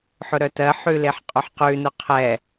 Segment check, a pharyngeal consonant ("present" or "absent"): present